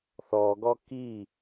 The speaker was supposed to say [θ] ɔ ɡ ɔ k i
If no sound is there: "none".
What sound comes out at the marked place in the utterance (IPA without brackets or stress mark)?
θ